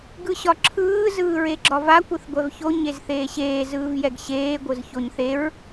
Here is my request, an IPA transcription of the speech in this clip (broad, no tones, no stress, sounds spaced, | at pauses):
ɡ ɯ ɕ ɒ ǁʰ ɯː z ɯː ɹ e ɡ͡ǁ ɒ v a kʷ ɯ θ ɡʷ ɛ v ç o ɲ e z θ eː ɕ eː z ɯː v j ɛ ɡ ɕ eː ɡʷ ɯ z ç o ɲ θ e ɹ